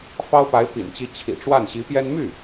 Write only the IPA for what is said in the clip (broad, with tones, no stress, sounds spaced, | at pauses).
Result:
f ɑ˥ ʊ̯ p a˧˥ ɪ̯ p ḭ˨˩ n t͡ɕ i˧˥ t͡ɕʰ ḭ˨˩ ʈ͡ʂ w a˥˩ n ɕ i˧˥ p j ɛ˥ n m y˥˩